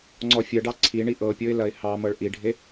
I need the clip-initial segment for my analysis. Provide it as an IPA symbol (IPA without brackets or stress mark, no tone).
ŋ͡ǀ